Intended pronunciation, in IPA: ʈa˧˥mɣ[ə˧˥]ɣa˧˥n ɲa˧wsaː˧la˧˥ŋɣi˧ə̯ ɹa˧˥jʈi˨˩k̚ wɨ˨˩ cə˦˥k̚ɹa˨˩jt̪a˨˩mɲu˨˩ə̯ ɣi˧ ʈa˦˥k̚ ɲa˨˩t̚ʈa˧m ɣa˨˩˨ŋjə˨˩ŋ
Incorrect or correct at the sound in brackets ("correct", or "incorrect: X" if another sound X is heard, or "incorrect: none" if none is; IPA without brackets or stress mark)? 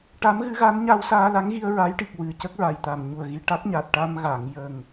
incorrect: ɨ˧˥